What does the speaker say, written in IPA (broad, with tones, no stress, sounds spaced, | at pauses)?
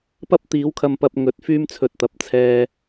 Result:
p ɐ˥ p̚ t̪ iː˨˥ w kʰ ɐ˧ m p ɐ˧ p̚ ŋ ɵ˨˥ t̚ f yː˥ m t͡sʰ ɵ˧ t̚ t̪ ɐ˨ p̚ t͡sʰ ɛː˧